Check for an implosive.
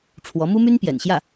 absent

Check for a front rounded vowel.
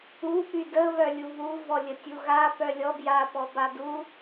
present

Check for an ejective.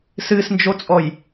present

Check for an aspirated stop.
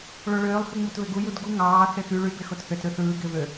absent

